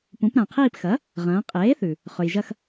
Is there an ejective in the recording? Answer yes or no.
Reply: yes